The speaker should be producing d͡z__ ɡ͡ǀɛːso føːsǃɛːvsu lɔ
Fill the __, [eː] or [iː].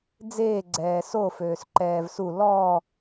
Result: eː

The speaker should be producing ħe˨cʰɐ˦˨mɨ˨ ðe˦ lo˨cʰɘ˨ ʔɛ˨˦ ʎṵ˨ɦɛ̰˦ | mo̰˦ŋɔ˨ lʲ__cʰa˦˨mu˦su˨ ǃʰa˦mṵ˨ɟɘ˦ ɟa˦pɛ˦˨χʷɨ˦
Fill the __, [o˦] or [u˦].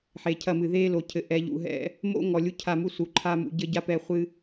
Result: u˦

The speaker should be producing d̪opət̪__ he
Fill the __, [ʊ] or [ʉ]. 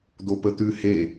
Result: ʉ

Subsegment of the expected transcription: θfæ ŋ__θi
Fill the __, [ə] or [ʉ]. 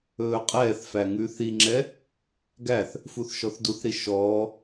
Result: ʉ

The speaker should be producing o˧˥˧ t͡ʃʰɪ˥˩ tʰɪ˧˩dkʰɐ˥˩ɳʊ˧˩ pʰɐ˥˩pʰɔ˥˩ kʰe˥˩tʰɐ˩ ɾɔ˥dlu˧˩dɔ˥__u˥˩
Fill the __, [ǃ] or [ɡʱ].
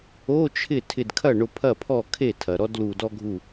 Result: ɡʱ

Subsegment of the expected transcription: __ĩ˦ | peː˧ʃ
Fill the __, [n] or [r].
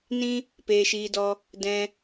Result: n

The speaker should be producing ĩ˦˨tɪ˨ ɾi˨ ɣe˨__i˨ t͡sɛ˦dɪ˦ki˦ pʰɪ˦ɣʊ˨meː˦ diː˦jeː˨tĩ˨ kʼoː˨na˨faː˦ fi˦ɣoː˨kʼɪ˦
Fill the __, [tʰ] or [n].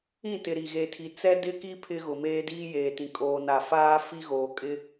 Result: tʰ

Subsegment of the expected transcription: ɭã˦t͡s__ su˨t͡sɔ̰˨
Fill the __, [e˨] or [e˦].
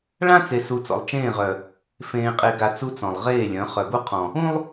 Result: e˨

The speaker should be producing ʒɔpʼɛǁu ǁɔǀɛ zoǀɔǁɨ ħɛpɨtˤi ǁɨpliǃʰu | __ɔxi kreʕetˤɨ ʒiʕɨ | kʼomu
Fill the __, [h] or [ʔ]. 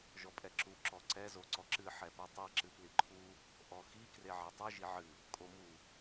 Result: ʔ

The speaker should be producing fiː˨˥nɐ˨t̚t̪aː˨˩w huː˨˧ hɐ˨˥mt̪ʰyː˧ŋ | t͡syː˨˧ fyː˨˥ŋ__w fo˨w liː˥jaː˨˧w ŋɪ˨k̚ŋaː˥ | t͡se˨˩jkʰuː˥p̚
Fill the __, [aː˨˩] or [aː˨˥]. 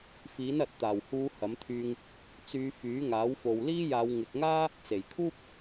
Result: aː˨˥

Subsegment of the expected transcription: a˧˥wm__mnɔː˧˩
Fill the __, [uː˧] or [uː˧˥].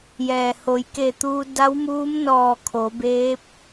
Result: uː˧˥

